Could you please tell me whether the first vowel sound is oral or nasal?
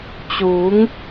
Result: oral